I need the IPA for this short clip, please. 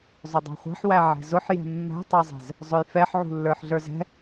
zˤ ʊ dˤ ɑ̤ χʷ æ̤ ħ w æ ʕ ɛ̤ z ʊ ħ j ɛ̤ mː æ̤ tˤ ɑ zˤ ɛ̤ z | zˤ ʊ j f ɛ ħ ʕ ṳ lː ə˞ ħ ɮ ə˞ z ɛ̤

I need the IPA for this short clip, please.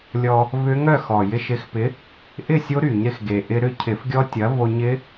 lʲ ɔ˧ | v ʏ˦˥ ŋ œ˥˨ x ɔ˨˩ j ɪ˧ ʃ ɪ˨˥ x p ɪ˨˥ | ʔ ɪ˥˨ sʲ o˦˥ ɾ y˧˩˧ ɲ ɾ ɪ˧ x ɡ e˨˩ ʔ ɪ˧ ɾ ʏ˥˨ cʰ ɪ˧˩˧ f ɡʲ ɔ˦˥ tʲ ɐ˨˥ v o˧ ɲ ɪ˦˥

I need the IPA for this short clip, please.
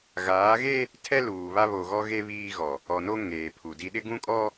ɣ aː˨˦ ɣ e˦ | tʰ ɛ˦ l uː˨ β a˦ β o˨ ɣ ɔ˦ ɣ e˦ β iː˦ ɣ ɔ˨ | ɔ˨ n o˦ ŋ eː˨ pʰ u˨ d i˨ ɗ ɪ˦ ɡ ũ˦ kʼ ɔ˦

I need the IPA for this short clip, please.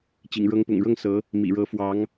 t͡ɕ ḭ˨˩ ŋ ɻ ɤ˧˥ ŋ p ʊ̰˨˩ ŋ ɻ ɤ˥˩ ŋ s ɤ˧˥ | m ḭ˨˩ ɻ ɤ˧˥ f w ɑ˧˥ ŋ

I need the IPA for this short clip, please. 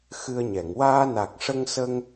x ɨ˧ ə̯ ɲ ɛ˨˩˨ ŋ w aː˧ n a˨˩ k̚ ʂ ə˧ ŋ s ə˧ ŋ

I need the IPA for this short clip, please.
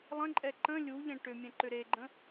lˠ ə̃ ǃʼ ɛ ǃ ə̃ lʲ u ʎ ɛ̃ ʈ ʏ mʲ ɛ̃ ǃ ʏ ɾ e ɡ͡ǃ ə̃

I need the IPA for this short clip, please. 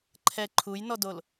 ǃʰ ɛ ǃʰ u j n ɔ d o l

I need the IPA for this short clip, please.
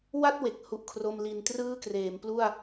w a˥˩ t̚ w e˨˩ k̚ h u˥˩ ʔ kʰ r o˥˩ m l i˧ n t r ɯː˥˩ k r eː˩˦ m p l u˥˩ a̯

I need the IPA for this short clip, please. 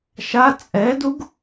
ʃ a t͡sʼ ɛ d u ɡ

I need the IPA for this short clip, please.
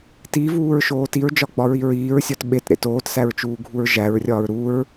t i v uː ɹ ʃ oː t i ɹ d͡ʒ ɒ ɡ͡b ɒ ɹ i ɹ iː ɹ sʲ ɒ t ɓ e t ɾ ḛ t oː t s æ ɹ t͡ʃ uː ɡʱ u ɹ ʒ æ ɹ rʲ ɒː ɹ ɾ u ɹ

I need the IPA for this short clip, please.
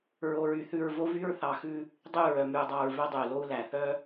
ɹ o˨ ɹ y˨ θ ʉ˨ ɹ v o˦ v y˦ ɹ θ ɑ˨ x ʉ˦ | dˤ ʉ˦˨ ɹ œ˨ m ʉ˨ u̯ dˤ ɑ˨ ɹ v œ˦ dˤ y˨ u̯ l o˦ u̯ l æ˨ θ œ˦

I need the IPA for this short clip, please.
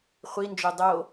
χʷ i n d͡ʒ o dˤ o

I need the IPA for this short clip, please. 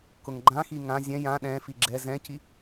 k ʊ ŋ ɡ͡ǃ ã x i ŋ ã zʲ ɛ̃ j ã ɗ ɛ̃ f i ɡ͡ǁ ɛ z ɛ̃ c i

